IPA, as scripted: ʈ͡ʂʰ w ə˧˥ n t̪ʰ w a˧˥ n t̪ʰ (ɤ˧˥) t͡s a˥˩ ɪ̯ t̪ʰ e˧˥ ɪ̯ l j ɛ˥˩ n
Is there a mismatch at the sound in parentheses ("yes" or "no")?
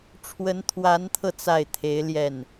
yes